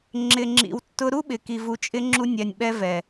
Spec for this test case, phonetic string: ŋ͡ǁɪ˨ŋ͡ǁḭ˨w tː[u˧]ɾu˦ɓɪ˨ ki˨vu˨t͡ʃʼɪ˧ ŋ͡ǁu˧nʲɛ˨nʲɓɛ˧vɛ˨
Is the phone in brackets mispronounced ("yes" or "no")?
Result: yes